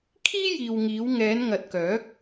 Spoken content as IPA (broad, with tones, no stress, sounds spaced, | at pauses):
kʰ iː˥ j iː˨ w ŋ iː˨˧ w ŋ ɛː˨˧ n ŋ ɐ˨ t̚ k œː˨˥ k̚